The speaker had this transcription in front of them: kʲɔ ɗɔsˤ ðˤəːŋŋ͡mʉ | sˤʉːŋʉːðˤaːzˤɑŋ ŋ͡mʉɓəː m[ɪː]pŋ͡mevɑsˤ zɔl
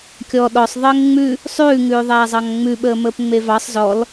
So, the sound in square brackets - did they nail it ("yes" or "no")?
no